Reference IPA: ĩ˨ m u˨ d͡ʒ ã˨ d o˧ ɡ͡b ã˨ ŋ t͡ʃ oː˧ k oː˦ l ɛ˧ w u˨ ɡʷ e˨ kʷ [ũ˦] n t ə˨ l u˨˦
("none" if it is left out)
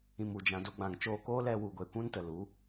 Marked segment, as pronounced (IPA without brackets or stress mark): ũ˦